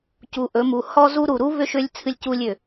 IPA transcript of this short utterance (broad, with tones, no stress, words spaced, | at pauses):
cu˨ʔɵ˨˦mu˨ hɔ˦zu˦ ɾu˨ɾu˦ βʏ˦ʃʏ˦lʲ t͡sʰɨ˦lʲcu˦lʲ ʏ˨